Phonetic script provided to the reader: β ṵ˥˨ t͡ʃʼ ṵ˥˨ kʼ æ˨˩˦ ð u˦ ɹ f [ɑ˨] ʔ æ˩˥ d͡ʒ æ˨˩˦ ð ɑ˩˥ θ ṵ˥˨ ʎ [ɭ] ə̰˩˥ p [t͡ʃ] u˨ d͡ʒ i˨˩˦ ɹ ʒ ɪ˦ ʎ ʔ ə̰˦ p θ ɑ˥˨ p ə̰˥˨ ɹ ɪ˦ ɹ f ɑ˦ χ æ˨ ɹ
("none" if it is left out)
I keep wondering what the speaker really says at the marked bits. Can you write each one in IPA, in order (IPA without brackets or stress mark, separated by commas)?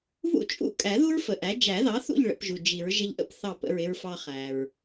ə˨, ɭ, ʒ